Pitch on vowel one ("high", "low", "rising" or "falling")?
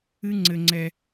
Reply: high